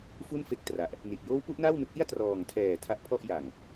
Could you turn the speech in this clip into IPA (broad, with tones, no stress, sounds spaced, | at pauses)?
f u˥˩ n f e˦˥ k̚ t r a˨˩ ʔ | n i˨˩ t̚ j oː˦˥ w p u˦˥ ʔ n aː˥˩ w n u˦˥ k̚ ʔ i˥˩ a̯ t r ɔː˨˩ ŋ tʰ ɛː˨˩ tʰ a˦˥ ʔ pʰ ɔ˥˩ ʔ j a˨˩ ŋ